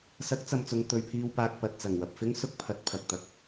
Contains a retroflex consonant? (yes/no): no